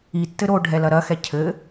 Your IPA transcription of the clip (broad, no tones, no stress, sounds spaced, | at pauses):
i tː ɘ ɾ o ɖʱ ɛ l ɐ ɾ ɐ x ɛ cʰ ɘ